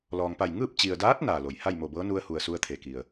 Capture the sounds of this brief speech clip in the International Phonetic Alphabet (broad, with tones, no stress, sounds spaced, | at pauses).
l ɔː˩ ŋ p a˧˩ j ŋ ɯː˥˨ p̚ t͡ɕ i˩ ə̯ d aː˧˥ t̚ n aː˩ l o˩ j h a˥˨ j m o˧˩ b ɤː˧˥ n u˧ ə̯ h u˩ ə̯ s u˧ ə̯ t̪ʰ e˩ k i˩ ə̯